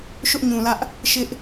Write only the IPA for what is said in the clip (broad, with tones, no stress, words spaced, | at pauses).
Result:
ʃʊ˦ʔɲũ˨lä˦ʔ | ʃɪ˦ʔ